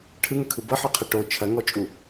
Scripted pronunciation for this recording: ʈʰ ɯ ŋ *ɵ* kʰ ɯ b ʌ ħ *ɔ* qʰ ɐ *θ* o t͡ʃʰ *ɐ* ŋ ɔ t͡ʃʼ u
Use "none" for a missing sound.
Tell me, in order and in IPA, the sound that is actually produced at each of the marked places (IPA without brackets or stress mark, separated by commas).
ɵ, ɔ, ʈ, ɐ